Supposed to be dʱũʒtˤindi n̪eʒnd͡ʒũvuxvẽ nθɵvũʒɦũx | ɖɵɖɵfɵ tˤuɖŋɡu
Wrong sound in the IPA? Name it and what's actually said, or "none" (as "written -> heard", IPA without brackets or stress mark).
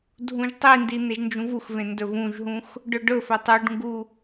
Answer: θ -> d